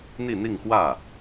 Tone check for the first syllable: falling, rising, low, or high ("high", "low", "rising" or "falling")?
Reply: falling